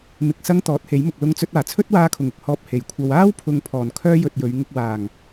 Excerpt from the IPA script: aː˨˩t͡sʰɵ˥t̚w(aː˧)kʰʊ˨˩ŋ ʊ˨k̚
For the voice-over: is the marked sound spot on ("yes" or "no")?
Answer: yes